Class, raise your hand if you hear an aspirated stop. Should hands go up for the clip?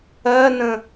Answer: no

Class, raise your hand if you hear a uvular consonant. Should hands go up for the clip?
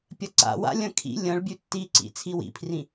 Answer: no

